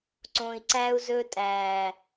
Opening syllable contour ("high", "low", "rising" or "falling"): low